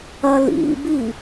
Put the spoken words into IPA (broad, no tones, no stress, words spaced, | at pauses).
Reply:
ɐlḭbi